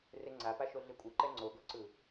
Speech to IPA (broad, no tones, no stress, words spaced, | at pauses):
reŋ͡ǀapaʃo ɮekʷʼɯ ǃɛŋ͡ǀoɡoǀɯ